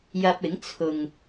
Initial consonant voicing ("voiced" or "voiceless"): voiced